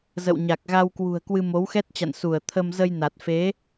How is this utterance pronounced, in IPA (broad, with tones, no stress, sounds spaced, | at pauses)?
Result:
z ə̰˧˨ w ɲ a˨˩ k̚ ɣ a˧ w k w ṳ˨˩ ə̯ k w ɨ˧ m o˨˦ w x ɛ˦˥ t̚ t͡ɕ a̰˧˨ n s u˧˩ ə̯ t̪ʰ ə˧ m z ə˧ j n a˨˩ t̚ f e˨˦